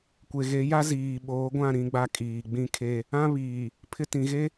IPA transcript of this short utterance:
kʷ e˨ ɣ e˨˦ j a˦ z iː˨ ɓ oː˨˦ ɡʷ ã˦˨ ɾ ĩ˦ ɡ͡b a˦ kʼ iː˨ ɡ͡b ĩ˦ kʰ e˦ | ã˦ β iː˨ | pʰ ɪ˦ t ĩ˨ ɣ e˦

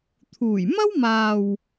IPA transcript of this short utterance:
t̪ʰ uː˨˩ j m ɐ˥ w m aː˨ w

